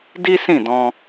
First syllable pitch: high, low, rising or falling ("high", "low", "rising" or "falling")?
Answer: high